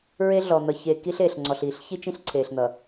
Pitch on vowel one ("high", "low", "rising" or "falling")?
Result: high